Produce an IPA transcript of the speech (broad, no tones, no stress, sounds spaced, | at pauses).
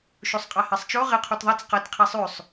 ʃ u sˤ qʼ a h e sˤ t͡ʃ o ʁ e qʰ u t ðˤ ɐ t͡s q ɐ t qʰ i sˤ ʉ sˤ